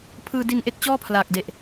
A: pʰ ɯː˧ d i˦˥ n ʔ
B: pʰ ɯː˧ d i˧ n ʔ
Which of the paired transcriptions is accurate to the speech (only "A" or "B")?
B